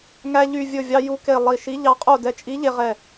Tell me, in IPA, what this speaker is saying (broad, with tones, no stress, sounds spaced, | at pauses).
ŋ æ˧ ʎ y˧˩ vʲ ɵ˧˩ vʲ ɑ˧ j u˧ k e˧˩ lˠ i˧˩ ʃ i˧˥ ʎ ɑ˧ qʼ o˥˨ d ɛ˧ t͡ʃʼ i˧˥ ʎ e˧ ʁ ɛ˧˩